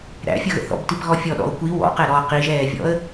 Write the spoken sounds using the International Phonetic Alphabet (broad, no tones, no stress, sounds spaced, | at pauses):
ɾ æ̰ fʲ ʌ ɣ ə̰ θ ɔ̰ b t i p ɣ ɔ fʲ ɔ ɗ ɔ̰ ʊ̯ kʷ i w ɔ̰ q ɛ ɾ ɔ q i ʒ ɛː vʲ ɔ̰ ə̯